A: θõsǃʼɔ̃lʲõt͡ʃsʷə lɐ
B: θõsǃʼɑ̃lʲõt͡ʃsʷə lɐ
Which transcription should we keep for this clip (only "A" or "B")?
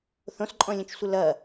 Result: A